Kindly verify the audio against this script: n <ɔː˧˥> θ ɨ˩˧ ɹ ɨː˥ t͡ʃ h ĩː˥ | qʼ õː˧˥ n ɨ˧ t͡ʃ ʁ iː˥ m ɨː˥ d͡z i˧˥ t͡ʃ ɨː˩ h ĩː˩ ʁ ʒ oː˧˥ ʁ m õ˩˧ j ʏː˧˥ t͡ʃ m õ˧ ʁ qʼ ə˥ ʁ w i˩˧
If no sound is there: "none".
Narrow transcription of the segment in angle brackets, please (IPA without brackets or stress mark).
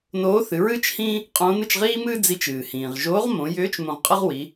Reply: oː˧˥